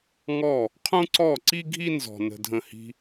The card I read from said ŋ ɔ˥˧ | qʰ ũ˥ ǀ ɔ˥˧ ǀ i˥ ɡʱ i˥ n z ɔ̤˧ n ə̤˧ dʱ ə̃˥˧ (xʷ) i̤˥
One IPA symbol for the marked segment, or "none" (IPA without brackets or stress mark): h